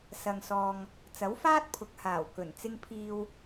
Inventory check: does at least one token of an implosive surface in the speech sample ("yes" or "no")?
no